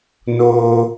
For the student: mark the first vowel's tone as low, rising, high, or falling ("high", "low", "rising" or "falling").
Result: high